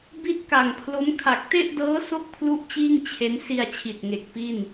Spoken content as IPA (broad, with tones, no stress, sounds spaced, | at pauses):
b i˥˩ t̚ k a˨˩ ŋ pʰ l o˦˥ m kʰ a˨˩ k̚ t e˥˩ ʔ d ɤː˦˥ s o˥˩ k̚ pʰ l u˦˥ ʔ t͡ɕ iː˥˩ ŋ t͡ɕʰ e˦˥ n s i˧ a̯ t͡ɕʰ i˨˩ t̚ ŋ e˨˩ k̚ p i˥˩ n